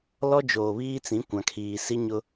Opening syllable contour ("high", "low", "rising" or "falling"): high